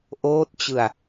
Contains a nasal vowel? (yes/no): no